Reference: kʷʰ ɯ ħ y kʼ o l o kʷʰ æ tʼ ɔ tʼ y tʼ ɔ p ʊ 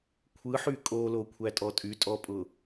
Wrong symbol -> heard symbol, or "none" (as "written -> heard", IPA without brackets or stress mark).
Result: p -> pʼ